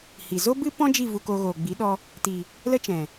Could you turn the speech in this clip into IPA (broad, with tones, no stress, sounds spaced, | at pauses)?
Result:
h i˨ z o˦ b ɨ˦ p ɔ̃˦ d͡ʒ i˦˨ v u˧ k o˧ ɣ oː˨ ɡ͡b i˨˦ ɗ ɔ˧ | t i˨ | l ə˦ t͡ʃ ɛ̃˨